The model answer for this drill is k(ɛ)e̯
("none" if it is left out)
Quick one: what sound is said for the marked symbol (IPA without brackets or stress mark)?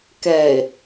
ɛ